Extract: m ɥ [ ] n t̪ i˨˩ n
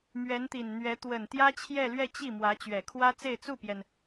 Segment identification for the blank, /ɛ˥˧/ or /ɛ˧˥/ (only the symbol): ɛ˧˥